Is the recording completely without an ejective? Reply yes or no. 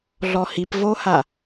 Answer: yes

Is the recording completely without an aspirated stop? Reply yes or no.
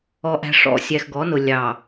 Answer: yes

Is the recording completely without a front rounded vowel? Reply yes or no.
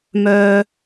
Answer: no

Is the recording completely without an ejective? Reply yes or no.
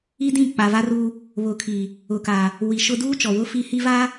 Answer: yes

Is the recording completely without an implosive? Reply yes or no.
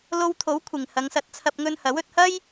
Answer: yes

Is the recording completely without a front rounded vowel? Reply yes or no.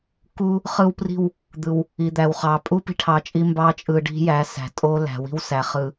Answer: yes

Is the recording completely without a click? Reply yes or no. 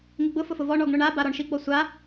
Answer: yes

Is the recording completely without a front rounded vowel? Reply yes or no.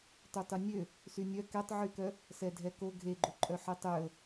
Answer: no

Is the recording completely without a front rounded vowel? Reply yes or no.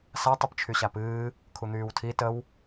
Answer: no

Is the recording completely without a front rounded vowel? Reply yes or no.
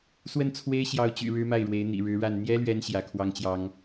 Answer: no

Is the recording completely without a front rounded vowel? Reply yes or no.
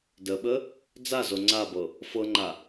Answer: yes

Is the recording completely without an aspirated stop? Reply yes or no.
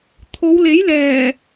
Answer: no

